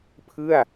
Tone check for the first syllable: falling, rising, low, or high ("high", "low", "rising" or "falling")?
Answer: falling